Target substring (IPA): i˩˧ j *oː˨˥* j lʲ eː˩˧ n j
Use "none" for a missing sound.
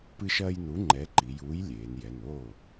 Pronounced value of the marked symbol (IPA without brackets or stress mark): uː˨˥